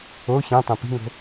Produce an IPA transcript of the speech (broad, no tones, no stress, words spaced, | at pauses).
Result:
o çẽtˤẽ pi̤ŋo̤